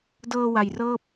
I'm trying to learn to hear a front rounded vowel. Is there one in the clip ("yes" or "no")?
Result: no